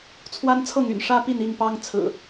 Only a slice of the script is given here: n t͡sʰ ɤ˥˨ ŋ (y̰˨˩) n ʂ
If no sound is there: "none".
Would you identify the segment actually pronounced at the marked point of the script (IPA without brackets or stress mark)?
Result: y̰˨˩